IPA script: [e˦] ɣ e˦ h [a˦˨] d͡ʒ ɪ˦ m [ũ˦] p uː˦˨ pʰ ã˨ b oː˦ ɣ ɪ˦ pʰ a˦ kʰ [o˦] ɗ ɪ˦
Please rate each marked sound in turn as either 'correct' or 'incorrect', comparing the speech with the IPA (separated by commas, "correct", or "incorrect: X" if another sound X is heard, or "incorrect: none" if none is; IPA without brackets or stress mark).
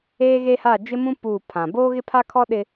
incorrect: eː˦, correct, correct, incorrect: ɔ˦